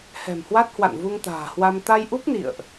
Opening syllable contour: low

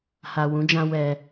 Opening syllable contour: low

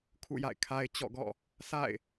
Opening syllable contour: falling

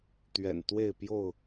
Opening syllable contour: low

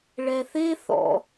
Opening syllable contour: low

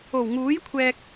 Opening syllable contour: low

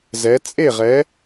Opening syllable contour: rising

